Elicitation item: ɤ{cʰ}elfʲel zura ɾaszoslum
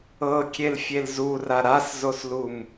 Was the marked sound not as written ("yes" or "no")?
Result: yes